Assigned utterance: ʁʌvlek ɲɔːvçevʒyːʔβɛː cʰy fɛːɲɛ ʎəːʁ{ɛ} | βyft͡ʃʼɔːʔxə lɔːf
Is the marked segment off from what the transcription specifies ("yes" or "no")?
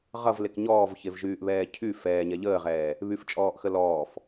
yes